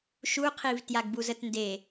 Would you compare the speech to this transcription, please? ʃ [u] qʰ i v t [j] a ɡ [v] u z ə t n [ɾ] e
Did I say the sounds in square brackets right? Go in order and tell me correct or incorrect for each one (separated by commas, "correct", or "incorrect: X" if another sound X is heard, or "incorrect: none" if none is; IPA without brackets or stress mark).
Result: correct, correct, incorrect: b, incorrect: d